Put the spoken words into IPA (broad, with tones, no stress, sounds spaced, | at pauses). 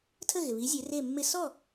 tʰ ə˥˩ ɣ ɪ˩ β i˩˥ zʲ e˩˥ r e˥˩ mː ɪ˥ s ɔ˥˩